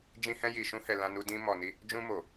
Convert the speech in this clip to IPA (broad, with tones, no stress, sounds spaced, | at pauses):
d͡ʒ ĩ˧ h ɛ̃˧ j i˨ ʃ ũ˧ h ɛ˨ l ã˧ n u˧ d ĩ˧ m ɔ˨ n i˧ | d͡ʒ ũ˧ m o˨